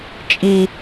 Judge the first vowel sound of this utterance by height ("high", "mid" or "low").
high